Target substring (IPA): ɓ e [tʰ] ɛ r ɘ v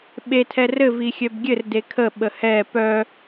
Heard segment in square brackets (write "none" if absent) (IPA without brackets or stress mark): tʰ